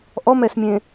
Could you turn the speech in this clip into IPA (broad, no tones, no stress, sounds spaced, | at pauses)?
ʔ ɔ m ɛ s mʲ ẽ